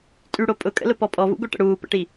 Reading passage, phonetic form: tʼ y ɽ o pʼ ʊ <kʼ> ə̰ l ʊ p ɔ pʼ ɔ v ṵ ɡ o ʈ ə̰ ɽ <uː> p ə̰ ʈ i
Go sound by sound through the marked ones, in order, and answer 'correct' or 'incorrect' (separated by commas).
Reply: correct, correct